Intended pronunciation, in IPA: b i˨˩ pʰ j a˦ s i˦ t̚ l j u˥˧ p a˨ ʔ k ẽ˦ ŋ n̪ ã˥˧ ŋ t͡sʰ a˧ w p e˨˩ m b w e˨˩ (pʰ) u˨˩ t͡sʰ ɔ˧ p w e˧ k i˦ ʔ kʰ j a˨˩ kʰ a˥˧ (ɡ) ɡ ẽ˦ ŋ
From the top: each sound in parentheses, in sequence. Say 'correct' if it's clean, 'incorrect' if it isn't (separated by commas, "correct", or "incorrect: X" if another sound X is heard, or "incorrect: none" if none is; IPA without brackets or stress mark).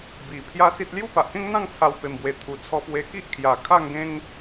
incorrect: t̪ʰ, incorrect: ŋ